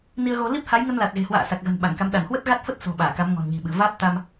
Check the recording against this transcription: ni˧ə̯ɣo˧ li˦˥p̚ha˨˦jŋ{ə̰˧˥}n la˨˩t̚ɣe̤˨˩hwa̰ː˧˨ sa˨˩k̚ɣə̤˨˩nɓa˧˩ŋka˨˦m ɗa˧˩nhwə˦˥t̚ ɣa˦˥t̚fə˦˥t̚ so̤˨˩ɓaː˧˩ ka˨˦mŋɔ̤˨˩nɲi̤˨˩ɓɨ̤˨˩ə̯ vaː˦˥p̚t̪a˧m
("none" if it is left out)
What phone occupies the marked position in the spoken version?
ə˧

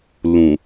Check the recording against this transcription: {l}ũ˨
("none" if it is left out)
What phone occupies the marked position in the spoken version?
l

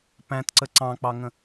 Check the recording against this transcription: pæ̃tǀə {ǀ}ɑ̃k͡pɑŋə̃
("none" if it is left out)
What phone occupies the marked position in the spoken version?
ǀ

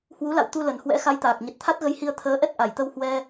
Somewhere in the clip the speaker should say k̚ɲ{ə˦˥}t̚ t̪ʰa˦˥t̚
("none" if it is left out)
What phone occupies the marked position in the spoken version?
ə˨˩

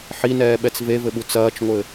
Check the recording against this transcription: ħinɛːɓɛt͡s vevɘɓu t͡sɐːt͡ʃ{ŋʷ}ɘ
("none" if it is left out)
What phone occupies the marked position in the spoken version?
ŋʷ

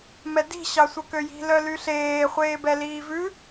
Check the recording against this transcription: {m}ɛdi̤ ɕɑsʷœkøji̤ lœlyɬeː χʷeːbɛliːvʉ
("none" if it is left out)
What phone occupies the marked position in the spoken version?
m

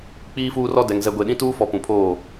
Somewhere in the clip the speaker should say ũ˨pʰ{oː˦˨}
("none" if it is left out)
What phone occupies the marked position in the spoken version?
oː˦˨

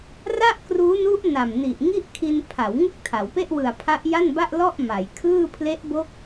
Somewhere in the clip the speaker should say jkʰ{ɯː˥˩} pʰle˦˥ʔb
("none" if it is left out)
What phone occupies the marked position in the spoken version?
ɯː˥˩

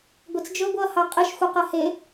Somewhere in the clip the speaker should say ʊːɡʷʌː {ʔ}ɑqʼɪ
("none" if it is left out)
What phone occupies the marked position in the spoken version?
h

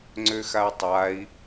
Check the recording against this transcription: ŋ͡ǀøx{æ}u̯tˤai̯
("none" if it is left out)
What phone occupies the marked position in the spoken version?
a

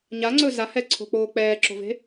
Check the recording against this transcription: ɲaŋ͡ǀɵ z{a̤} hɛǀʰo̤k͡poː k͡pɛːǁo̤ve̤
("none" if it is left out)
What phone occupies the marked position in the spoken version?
a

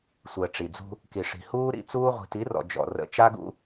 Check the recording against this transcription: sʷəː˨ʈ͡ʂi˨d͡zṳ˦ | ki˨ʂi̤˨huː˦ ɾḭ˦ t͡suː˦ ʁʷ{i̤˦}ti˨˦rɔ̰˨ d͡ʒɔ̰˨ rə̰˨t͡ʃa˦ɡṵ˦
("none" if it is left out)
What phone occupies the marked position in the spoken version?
i̤˨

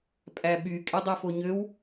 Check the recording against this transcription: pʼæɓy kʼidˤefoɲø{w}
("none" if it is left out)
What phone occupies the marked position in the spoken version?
w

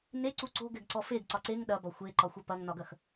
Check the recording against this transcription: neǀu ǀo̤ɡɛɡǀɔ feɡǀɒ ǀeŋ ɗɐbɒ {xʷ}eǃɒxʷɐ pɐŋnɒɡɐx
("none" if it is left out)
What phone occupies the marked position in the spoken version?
xʷ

